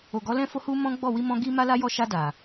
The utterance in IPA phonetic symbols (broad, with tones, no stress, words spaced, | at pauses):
o˨ɡɔ˨˦ lɛ̃˧fo˧hu˧ mɔ̃˦ɡ͡bɔ˦˨ wi˧mɔ̃˧ ɡi˧ ma˧la˧ jɔ˧ʃa˧da˨